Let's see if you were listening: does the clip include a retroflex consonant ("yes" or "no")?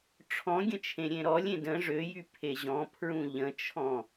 yes